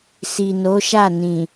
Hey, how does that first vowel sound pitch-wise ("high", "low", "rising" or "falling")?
low